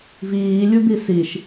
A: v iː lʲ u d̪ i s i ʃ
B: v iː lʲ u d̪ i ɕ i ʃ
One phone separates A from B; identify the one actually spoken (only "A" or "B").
A